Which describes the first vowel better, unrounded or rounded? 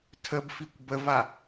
unrounded